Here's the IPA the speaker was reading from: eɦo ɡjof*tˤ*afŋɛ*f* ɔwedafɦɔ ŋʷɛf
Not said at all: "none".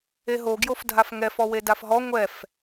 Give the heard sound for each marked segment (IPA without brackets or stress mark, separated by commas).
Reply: dʱ, f